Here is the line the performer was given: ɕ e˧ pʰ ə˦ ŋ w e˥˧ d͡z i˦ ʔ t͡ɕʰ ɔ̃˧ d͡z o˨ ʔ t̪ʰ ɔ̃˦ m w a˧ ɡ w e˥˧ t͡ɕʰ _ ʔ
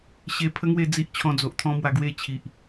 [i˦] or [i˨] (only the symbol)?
i˨